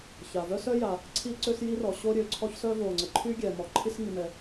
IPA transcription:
ç a˩ v œ˥ s œ˥ j a˩ | ǀʰ i˥ ǀ ø˥ s j i˥ r ɔ˩ ɕ o˥ ɾʲ ø˩ ǀʰ ɔ˥ ç s œ˥ v o˩ ŋ͡ǀ ə˩ ǃʰ y˥ ɡʲ ɛ˩ m ɔ˩ ǃʰ i˥ s ŋ i˩ m ɛ˩

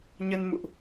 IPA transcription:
ɲ ə˧ n m ṵ˧˨ ʔ

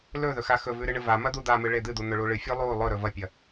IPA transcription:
l ɵ ð ɵ x a x ɵ v ʉ ɾ ɨ ɳ ɨ v a m ɐ d̪ u d̪ a m ɨ ɭ e d̪ ɨ d̪ u n̪ ɵ ɭ u ɭ ɨ fʲ ʉ lˠ u lˠ ɵ ɾ ɵ v ɐ pʲ ɐ

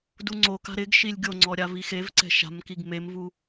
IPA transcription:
d u ŋ͡ǀ o k a̤ ɾ ɪ ɡ ʃ i lʲ ɡʲ o ŋ͡ǀ ɔ ɾʲ a v i x e v ǀ ɛ̤ ʃ a̤ m k i ɡ m e m v u

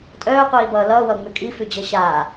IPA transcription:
tʼ œː qʷ iː b ʌː l ʌː w ʌː ŋ͡m ʉ kʼ i f ʉ d͡ʑ ʌ ɕ aː

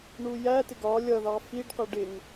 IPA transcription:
ɳ u j æ t ɪ ɡ ɒ lʲ ʌ ð ɑ f i ɖ q ʌ ɖ ɪ ŋ

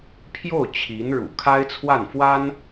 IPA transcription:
pʰ j o˥˩ ʊ̯ t͡ɕʰ i˧˥ n ɻ ṵ˨˩ kʰ a˥ ɪ̯ t͡sʰ w a˥˩ n f w a˥ n

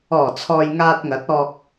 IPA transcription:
ɔː˨˩ t͡sʰ ɔː˨ j ŋ aː˧ t̚ ŋ ɐ˨˥ t̚ ɔː˧ k̚

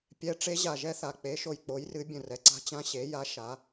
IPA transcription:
pʲ ɛ˨˦ ʈ͡ʂ e˨˦ ʑ a˨ ʒ ɛ˦ θ a˨ k͡p e˨˦ ʃ o˨ j k͡p o˨˦ j r ɨ˨˦ bʲ ə̃˨ r ɛ˨ ǀ a̤˦ t͡ɕ ã˦ ɕ e˨˦ j a˨˦ ʃ a˨˦

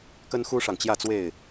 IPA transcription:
k ə˦ n x u˦ ʂ ɑ˨ ŋ t͡ɕ j ä˥˨ t͡s w e˥˨ ɪ̯

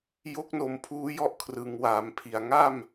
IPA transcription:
j o˦˥ k̚ n o˨˩ m pʰ uː˦˥ j ɔ˥˩ ʔ kʰ r ɯ˩˦ ŋ w aː˩˦ m pʰ i˨˩ a̯ ŋ a˥˩ m

